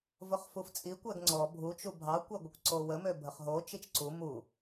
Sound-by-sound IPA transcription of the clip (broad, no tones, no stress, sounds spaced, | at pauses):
v ʊ χ f u f t͡sʼ i kʷ ɛ ɡ ŋ͡ǀ ɔ bʱ u t͡ʃ u bʱ ɑ kʷ ɛ ɡʷ ə kʷ ǀ o w ə m ø bʱ ə χ ɦ o t͡ʃ i t͡ʃ ǀ u m u